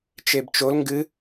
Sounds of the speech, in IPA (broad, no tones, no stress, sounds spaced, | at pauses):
t͡ʃ e b t͡ʃ o l ŋ ɡ ɨ